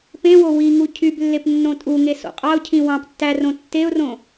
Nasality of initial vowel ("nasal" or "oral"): nasal